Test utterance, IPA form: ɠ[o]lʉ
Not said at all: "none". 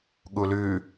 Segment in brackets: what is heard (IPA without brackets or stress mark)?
u